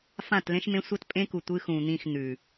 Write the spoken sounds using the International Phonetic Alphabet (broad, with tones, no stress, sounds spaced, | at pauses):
f ã˦˨ t l ẽ˦ ʃ m ẽ˦ sʷ ɐ˦ t pʼ ẽ˦ k u˨ tʷ ɨ˦ x ũ˨ n̪ ĩ˦˨ x n̪ ʉ˨